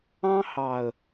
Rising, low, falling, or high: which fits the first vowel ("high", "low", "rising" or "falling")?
high